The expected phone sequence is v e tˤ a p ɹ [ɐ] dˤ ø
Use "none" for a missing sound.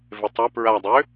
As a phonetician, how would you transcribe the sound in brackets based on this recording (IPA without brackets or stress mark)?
a